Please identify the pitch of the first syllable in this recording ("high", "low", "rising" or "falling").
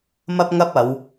high